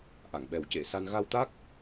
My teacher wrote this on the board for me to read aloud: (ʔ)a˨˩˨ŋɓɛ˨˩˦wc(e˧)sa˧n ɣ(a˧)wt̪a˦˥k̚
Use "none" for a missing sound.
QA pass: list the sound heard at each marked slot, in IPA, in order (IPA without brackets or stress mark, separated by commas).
ʔ, e˨˩˨, a˧